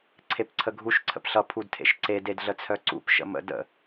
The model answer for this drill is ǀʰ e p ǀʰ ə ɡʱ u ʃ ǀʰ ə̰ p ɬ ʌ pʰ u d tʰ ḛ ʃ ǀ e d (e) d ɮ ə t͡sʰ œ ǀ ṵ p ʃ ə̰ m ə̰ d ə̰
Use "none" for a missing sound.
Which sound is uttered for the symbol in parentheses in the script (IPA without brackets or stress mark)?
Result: e